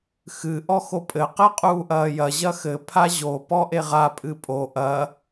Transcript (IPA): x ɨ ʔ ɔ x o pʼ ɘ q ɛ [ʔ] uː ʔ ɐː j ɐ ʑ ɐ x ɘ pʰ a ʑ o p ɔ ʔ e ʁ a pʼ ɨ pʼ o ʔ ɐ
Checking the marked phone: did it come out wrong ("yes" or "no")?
yes